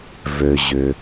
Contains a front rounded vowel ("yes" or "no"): yes